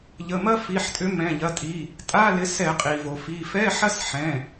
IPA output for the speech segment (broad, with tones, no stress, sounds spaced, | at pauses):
ʎ ə˩˧˩ m ɐ˦˥ f i˩˧˩ ħ tʼ ʏ˨˦ m ɛ̃˩˧˩ ʎ ɐ˩˧˩ tʼ i˩˧˩ | tʼ a˧˥˧ l ɪ˨˦ s ɛ˧˩˧ qʼ i˩ v o˩ f i˩˧˩ f ɛ˧˥˧ ħ ɐ˦˥ s ħ ɛ̃˩˧˩